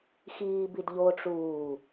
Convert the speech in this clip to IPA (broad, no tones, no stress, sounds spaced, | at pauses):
x iː b i d ʎ o ʈ͡ʂ uː